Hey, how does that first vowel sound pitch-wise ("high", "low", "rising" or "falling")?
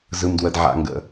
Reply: high